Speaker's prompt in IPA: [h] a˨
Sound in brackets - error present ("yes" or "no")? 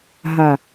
yes